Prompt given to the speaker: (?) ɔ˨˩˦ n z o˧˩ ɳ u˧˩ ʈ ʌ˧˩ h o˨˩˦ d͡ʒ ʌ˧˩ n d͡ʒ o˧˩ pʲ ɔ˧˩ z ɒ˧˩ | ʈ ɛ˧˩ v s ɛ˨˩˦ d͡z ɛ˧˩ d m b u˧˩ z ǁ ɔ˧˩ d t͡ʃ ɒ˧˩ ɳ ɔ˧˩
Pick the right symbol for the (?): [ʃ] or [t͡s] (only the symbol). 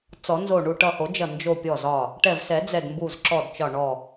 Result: t͡s